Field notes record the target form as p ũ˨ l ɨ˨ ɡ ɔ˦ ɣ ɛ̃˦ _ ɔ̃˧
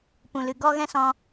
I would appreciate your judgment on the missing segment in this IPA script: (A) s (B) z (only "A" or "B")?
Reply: A